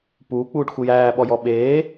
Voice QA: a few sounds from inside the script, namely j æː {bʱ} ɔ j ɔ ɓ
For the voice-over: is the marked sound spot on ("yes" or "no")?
no